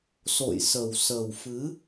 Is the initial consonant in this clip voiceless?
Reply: yes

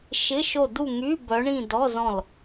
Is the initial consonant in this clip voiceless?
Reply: yes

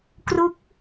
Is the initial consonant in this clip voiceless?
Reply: yes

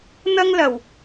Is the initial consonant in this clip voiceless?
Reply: no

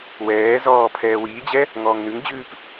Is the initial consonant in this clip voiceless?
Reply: no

